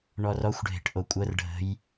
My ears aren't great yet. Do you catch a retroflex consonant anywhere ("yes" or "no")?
yes